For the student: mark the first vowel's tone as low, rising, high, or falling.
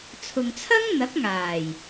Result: low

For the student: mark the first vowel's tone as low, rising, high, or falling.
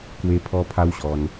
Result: high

